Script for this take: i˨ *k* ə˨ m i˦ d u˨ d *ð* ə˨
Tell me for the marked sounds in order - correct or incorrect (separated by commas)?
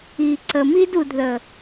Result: incorrect, correct